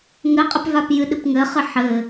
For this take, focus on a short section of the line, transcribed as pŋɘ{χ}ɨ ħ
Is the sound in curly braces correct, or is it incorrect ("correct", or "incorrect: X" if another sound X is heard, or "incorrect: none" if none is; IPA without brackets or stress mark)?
correct